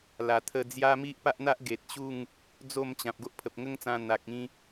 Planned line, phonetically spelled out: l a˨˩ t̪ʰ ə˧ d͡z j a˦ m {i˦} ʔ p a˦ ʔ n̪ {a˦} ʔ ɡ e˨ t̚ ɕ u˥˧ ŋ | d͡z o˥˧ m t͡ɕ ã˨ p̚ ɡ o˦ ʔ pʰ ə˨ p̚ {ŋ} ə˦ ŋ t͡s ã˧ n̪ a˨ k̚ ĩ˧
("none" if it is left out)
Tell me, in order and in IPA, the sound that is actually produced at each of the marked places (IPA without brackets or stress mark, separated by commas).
i˦, a˦, ŋ